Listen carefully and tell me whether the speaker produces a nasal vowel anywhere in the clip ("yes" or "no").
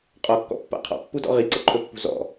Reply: no